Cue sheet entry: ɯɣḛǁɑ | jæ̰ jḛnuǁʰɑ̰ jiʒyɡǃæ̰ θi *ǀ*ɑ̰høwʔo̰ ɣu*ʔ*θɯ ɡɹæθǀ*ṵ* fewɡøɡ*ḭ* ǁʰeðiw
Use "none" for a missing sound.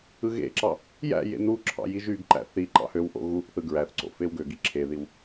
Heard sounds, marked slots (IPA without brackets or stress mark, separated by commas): ǃ, ʔ, o̰, i